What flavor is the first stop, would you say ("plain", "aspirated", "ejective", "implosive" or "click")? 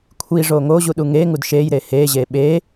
aspirated